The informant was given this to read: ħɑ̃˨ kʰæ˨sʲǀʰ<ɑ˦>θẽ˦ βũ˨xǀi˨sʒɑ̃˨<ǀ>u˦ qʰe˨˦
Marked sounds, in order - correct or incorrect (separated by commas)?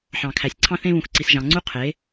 incorrect, incorrect